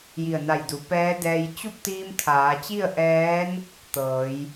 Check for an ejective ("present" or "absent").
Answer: absent